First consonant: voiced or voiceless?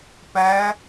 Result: voiceless